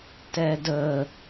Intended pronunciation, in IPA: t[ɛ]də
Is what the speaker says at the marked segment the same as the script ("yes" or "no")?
yes